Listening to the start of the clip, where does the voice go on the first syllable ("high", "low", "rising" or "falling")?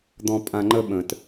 low